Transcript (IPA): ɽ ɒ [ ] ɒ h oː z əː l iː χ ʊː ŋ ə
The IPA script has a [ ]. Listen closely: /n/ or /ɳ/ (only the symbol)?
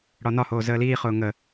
n